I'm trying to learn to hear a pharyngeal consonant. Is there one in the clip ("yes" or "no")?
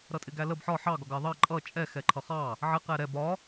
yes